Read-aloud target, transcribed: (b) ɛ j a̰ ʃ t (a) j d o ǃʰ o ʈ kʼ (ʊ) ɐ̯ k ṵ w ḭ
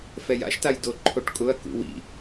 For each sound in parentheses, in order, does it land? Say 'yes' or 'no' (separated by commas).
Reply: no, yes, yes